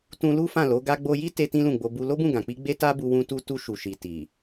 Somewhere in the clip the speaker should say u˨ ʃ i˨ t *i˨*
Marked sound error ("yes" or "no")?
no